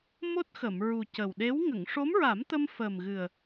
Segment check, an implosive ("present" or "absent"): present